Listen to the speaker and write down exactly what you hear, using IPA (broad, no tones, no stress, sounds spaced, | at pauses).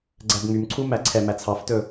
ɡ͡ǀ æ b ŋ͡m y m ǀʰ u m æ ǀʰ ɛ m æ t͡sʰ ɑ f t ɵ